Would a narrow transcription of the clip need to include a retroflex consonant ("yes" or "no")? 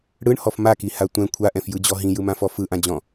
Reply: yes